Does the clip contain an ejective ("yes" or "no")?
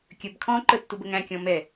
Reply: no